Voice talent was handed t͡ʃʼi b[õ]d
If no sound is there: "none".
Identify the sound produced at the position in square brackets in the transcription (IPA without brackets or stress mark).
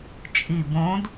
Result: õ